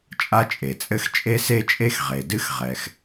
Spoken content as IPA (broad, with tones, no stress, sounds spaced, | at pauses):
t͡ʃʼ a˥ t͡ʃʼ e˩ t͡sʼ ɘ˥ x t͡ʃʼ e˥ s e˥ t͡ʃʼ e˥ x ʁ e˩ d ɨ˥ x ʁ ɛ˩ x